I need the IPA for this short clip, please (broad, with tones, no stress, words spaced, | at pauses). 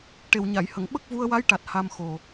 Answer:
ʈe˨˩wɲa˨˩˨jhə˨˩˨ŋ ɓə˦˥k̚vu˧ə̯wa˧˥jʈa˨˩t̚ ha˧mxo˨˩